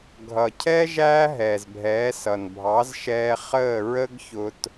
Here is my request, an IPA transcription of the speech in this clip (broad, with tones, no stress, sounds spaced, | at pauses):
ɡʱ ʌ˩ cʰ ɛ˥ ʒ æː˥ ɦ ɛː˩ z bʱ ɛː˩˥ s ʌ˩ n bʱ ɑ˩˥ z ʃ ɛː˧ χ əː˥˩ ɹ ə˥ ɡ ç ʊ˧ t